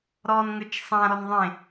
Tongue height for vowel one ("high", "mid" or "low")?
mid